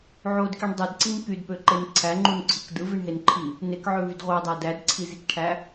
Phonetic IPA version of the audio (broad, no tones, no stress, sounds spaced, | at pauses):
ʕ o d k i ɳ dˤ i d ǀ i n k y d p ø ǃ e n ǀʰ æ ŋ͡ǃ u n ǀʰ ɯ k d ɯ v i ɳ ɦ e n ǃʰ i | n e k ʕ ø v y d ʁʷ ɑ dˤ æ d æ d ǀʰ i z i k ʈʰ æ